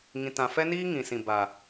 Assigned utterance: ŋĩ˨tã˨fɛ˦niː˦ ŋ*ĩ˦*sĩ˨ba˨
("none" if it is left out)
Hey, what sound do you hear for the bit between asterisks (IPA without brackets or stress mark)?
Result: ĩ˨